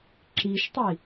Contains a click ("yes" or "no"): yes